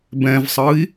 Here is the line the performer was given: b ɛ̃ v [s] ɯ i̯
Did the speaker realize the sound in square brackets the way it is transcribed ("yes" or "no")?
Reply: no